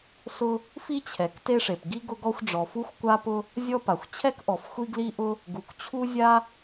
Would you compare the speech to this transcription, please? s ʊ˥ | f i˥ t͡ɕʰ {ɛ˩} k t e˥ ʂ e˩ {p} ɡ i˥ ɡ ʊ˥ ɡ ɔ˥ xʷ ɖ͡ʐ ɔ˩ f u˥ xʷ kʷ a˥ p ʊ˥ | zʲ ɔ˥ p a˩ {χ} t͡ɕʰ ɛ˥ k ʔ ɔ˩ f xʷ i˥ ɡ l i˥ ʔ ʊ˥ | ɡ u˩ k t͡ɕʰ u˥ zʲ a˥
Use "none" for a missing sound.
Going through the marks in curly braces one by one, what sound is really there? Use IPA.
ɛ˩, p, xʷ

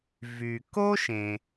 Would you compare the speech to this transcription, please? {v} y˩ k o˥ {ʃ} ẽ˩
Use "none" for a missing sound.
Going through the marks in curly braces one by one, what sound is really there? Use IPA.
v, ʃ

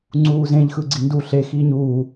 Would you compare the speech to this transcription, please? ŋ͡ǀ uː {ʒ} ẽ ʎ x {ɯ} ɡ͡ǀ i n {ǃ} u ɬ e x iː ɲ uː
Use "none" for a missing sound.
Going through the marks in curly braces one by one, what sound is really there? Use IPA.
z, ɯ, d

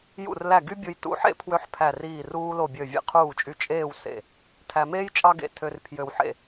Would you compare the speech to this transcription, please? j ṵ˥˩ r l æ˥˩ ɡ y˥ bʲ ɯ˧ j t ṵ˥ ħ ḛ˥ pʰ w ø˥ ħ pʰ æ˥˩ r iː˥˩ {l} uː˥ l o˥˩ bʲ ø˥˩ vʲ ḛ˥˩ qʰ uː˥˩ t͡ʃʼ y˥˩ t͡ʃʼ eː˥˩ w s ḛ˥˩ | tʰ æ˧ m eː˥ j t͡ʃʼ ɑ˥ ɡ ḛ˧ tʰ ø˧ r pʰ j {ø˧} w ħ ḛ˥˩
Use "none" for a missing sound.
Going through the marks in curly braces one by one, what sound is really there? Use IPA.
r, ø˧

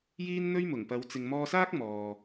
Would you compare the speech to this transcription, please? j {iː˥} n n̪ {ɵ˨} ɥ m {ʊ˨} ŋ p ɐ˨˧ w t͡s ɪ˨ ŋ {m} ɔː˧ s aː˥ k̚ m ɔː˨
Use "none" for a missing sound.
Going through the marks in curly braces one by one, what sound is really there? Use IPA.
iː˥, ɵ˥, ʊ˨˩, m

